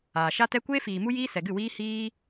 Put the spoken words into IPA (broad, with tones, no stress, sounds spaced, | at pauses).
aː˨ ʃ a˦ t ɛ˦ kʷ eː˦ f iː˨ m u˦ j iː˦ s ɛ˨ ɡ ɨ˦˨ w iː˦ h iː˦